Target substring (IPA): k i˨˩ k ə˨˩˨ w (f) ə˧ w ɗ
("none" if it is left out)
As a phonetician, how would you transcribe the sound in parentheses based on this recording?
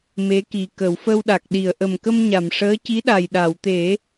f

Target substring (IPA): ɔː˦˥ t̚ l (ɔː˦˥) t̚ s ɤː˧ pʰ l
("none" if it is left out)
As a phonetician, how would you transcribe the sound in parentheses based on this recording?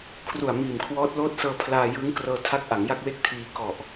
oː˦˥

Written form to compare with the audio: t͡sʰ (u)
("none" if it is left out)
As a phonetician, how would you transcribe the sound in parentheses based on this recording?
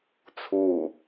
u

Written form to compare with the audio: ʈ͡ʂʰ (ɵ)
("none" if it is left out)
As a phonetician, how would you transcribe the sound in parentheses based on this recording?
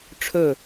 ɵ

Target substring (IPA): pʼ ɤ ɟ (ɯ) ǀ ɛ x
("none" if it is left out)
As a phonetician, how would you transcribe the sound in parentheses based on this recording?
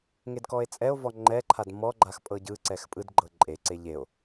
ɯ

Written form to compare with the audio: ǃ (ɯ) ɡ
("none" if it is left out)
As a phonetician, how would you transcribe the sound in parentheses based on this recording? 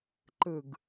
ɯ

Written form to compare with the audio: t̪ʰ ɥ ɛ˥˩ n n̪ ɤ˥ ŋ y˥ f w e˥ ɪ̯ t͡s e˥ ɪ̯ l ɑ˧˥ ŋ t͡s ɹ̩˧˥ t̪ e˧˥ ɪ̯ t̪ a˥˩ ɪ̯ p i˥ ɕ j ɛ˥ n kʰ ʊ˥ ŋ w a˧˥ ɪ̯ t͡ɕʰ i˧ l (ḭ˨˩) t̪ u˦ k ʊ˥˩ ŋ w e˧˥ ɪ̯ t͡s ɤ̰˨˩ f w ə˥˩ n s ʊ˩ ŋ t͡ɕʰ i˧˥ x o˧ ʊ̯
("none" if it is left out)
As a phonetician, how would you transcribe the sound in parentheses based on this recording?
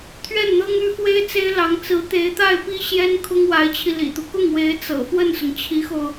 ḭ˨˩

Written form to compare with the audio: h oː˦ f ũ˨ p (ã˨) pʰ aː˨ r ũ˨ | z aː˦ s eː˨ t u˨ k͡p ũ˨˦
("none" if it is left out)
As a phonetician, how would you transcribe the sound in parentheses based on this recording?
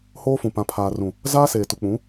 ã˨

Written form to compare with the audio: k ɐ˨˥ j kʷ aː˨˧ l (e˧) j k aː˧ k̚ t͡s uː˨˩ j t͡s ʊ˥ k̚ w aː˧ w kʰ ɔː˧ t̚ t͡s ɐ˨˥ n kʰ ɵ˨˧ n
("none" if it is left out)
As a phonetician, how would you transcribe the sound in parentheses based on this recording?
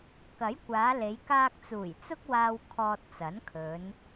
e˨˧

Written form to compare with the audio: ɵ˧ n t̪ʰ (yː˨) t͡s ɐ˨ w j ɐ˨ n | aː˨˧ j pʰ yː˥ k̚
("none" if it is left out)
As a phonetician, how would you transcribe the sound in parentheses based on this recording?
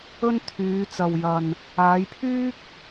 yː˨˧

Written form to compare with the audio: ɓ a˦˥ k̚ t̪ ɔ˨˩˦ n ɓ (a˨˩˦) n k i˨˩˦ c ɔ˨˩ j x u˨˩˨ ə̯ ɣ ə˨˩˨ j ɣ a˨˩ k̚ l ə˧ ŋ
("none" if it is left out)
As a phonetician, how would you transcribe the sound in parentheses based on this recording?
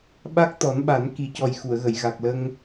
a˨˩˦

